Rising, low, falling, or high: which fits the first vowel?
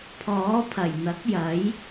rising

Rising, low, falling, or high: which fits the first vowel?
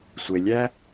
low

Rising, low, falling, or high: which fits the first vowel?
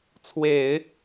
low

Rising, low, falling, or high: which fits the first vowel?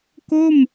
falling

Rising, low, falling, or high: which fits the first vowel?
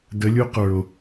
rising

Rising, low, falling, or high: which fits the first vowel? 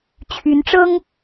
rising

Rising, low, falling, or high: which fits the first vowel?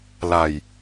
low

